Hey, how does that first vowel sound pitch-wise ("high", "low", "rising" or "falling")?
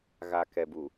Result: low